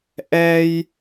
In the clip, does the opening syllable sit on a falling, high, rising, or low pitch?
high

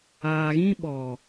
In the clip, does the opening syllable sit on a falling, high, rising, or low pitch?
low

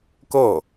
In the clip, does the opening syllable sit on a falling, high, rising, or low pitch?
falling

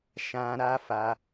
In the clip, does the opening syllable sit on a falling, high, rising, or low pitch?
low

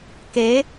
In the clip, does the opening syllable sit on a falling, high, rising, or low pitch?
rising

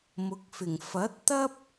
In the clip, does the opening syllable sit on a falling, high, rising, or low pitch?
rising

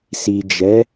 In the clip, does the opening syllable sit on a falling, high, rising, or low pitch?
low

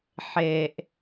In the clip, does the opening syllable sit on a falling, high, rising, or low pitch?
low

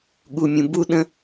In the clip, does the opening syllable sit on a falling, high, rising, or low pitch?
low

